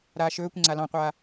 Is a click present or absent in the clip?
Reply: present